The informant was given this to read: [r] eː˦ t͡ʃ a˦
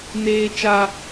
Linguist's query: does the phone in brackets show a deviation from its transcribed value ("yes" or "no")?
yes